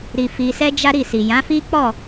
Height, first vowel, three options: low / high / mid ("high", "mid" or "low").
high